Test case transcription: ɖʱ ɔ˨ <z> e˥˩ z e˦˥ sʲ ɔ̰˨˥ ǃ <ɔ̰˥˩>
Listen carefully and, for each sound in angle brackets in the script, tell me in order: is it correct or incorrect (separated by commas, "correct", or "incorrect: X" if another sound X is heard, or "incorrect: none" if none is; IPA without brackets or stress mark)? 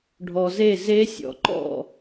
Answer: correct, correct